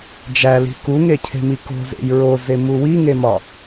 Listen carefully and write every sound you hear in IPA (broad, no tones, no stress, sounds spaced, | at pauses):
d͡ʒ æ l i̤ k u ŋ e cʰ e̤ m i k o̤ z ḛ j ɹ o z e m u w i ŋ e m ɒ